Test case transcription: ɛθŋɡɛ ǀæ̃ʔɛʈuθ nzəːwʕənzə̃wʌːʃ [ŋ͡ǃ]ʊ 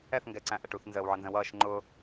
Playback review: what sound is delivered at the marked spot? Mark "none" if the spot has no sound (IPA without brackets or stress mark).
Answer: ŋ͡ǃ